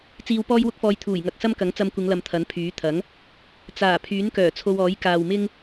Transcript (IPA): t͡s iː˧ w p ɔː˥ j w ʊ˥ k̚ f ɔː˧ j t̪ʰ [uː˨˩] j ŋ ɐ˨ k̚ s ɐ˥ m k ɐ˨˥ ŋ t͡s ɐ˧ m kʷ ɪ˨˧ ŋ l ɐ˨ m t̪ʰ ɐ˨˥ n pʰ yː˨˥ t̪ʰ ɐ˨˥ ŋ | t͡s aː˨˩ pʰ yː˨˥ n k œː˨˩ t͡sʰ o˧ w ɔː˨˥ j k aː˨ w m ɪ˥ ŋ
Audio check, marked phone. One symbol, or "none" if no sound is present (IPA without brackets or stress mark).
uː˨˩